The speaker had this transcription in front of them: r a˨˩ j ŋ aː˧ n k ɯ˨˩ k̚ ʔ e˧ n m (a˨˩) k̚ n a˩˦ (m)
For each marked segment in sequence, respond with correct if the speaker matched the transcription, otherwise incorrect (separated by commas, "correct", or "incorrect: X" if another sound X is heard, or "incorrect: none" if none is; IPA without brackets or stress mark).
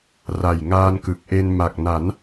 correct, incorrect: n